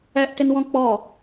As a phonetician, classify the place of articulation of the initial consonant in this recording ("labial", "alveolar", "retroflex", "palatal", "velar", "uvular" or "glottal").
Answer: glottal